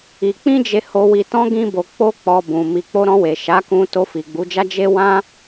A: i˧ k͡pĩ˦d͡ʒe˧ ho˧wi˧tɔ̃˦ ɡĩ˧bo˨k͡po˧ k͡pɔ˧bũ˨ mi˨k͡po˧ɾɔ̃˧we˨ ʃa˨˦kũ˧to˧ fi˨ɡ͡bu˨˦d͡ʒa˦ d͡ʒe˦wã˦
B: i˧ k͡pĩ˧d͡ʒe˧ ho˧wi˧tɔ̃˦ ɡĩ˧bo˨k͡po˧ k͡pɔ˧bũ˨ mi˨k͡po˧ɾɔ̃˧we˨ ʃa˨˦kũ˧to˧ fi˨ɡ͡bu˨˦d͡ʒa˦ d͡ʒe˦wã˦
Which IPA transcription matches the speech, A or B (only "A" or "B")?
A